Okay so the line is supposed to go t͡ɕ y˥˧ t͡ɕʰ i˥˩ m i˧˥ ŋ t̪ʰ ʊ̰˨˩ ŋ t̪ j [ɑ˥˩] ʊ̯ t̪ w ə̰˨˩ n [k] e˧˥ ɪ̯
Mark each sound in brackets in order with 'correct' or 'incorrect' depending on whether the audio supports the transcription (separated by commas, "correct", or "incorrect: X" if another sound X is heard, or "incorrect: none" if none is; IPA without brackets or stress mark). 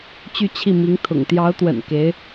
incorrect: ɑ˧˥, correct